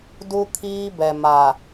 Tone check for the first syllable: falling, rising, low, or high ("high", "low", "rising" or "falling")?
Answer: high